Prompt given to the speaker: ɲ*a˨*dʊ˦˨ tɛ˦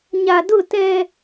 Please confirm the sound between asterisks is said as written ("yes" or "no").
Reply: yes